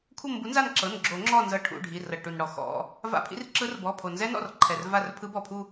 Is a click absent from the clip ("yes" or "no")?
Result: no